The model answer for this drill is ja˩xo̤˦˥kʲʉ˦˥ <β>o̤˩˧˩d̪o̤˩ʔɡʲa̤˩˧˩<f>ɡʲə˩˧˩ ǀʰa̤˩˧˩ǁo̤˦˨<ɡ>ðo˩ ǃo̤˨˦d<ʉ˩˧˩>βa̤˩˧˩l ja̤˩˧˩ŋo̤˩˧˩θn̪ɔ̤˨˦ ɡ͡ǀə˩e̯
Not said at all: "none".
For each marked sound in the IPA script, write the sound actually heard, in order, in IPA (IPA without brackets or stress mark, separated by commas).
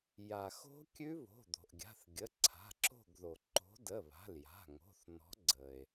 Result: β, θ, ɡ, ə˩˧˩